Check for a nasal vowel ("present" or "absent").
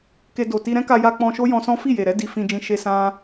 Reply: present